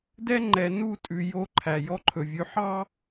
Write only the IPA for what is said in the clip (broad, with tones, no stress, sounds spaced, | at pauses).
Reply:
d ɛ˦ ŋ͡ǃ ɛ˨ n u˦˨ tʼ ʉ˨ j o˦ ǃʰ æ˨ j ɔ˦ ǃʰ ɵ˨ vʲ ʉ˨ ħ ɑ˦